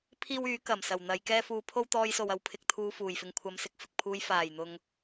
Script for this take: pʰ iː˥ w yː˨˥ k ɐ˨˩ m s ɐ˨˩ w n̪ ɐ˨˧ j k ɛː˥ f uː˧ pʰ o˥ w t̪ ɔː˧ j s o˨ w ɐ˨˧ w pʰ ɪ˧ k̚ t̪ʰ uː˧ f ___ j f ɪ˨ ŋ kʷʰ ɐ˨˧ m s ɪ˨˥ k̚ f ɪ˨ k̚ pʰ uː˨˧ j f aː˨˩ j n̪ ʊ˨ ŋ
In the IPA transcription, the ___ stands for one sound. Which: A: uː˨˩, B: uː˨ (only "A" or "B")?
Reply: A